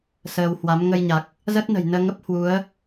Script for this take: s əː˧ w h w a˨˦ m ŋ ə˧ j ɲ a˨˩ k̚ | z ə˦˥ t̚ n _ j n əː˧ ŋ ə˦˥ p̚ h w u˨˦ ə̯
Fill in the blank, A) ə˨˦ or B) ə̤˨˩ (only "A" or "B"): B